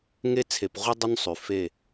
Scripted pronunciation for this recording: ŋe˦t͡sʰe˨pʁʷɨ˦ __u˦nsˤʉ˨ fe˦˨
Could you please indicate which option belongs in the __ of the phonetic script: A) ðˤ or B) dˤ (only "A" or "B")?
B